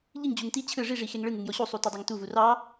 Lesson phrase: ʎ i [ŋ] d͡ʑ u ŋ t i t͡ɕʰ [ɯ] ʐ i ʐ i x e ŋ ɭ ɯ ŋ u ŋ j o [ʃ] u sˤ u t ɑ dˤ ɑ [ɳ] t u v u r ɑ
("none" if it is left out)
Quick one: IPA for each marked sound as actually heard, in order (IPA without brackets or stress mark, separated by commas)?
ŋ, ɯ, ɕ, ŋ